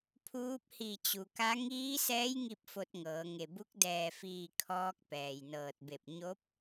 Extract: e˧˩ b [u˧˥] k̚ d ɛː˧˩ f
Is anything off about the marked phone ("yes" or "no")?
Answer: no